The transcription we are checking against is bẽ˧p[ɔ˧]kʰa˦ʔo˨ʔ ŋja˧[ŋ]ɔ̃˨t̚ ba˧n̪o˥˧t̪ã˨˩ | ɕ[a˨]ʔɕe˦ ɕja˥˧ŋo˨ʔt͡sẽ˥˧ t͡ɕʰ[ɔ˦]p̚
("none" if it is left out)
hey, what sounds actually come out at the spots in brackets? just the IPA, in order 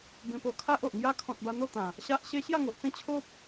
o˧, kʰ, a˦, o˦

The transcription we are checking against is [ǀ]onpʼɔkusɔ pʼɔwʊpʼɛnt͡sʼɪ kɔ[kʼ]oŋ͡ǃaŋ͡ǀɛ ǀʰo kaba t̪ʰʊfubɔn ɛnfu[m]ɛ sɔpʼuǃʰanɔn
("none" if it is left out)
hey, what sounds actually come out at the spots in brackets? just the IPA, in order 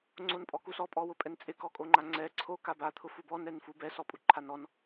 ŋ͡ǀ, kʼ, b

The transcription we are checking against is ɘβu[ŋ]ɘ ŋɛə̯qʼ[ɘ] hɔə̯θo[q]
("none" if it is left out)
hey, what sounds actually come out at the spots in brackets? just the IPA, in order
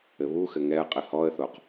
x, ɘ, q

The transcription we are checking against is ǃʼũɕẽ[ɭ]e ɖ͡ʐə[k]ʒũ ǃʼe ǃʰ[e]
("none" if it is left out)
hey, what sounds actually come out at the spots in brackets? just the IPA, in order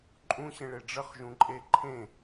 ɭ, χ, ẽ

